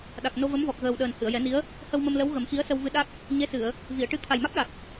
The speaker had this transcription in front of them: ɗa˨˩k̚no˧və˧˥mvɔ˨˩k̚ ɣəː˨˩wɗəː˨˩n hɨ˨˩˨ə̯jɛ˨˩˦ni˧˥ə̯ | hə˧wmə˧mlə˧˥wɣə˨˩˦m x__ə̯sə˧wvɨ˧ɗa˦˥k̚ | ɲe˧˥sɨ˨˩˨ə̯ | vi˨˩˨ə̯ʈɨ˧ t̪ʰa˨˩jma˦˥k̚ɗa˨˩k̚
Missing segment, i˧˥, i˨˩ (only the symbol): i˧˥